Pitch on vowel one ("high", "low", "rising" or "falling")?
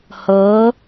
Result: rising